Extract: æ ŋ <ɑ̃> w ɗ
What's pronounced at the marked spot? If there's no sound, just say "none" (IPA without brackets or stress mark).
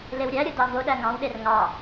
ɑ̃